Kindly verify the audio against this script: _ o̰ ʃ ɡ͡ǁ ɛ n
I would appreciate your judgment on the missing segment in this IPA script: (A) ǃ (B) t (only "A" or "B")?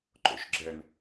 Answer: A